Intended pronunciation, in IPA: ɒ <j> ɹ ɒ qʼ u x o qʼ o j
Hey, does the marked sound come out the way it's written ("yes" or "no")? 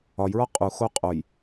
yes